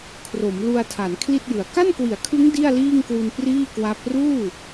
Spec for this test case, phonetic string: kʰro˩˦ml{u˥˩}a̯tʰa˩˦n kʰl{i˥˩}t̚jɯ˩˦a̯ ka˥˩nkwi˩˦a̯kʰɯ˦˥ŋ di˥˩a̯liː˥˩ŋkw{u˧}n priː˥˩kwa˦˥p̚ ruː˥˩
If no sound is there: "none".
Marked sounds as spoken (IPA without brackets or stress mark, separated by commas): u˧, i˥˩, u˧